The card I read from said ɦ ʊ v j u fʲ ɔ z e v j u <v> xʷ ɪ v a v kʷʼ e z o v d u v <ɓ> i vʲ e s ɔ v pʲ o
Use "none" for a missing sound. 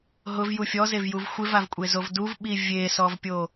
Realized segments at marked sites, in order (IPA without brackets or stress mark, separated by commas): v, ɓ